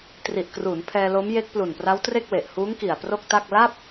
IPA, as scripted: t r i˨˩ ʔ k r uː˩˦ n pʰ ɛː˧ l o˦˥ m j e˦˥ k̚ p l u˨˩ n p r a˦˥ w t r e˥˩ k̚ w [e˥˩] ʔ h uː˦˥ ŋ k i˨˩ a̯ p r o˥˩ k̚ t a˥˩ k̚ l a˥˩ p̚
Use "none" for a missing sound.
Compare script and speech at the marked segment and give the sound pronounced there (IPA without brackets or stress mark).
e˨˩